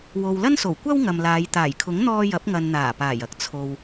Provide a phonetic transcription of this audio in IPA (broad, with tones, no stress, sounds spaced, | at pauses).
w o˨ w l ɐ˥ n s o˨˩ w kʷ ɐ˥ w ŋ ɐ˨ m l aː˨˧ j t̪ aː˨˩ j kʰ ʊ˨˥ ŋ n̪ ɔː˧ j ɐ˨˥ p̚ ŋ ɐ˨ n n̪ aː˨˩ p aː˨˩ j ɐ˧ k̚ t͡sʰ o˨ w